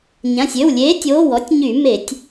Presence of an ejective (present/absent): absent